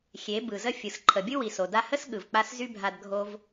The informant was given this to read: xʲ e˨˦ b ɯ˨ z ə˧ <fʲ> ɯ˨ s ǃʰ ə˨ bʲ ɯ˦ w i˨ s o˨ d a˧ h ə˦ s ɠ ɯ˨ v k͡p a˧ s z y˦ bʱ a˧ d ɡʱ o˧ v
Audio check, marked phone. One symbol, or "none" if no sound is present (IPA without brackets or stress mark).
fʲ